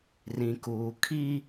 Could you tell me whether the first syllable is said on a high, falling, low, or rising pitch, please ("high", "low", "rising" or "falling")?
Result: low